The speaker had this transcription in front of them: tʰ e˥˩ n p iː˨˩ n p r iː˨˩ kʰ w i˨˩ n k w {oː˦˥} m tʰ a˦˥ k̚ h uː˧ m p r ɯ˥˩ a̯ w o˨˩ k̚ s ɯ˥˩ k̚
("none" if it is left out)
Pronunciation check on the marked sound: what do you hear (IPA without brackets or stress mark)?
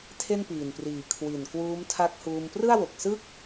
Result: uː˦˥